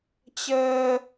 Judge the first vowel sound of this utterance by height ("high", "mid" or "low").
mid